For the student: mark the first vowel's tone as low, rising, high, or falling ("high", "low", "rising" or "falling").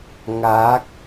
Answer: rising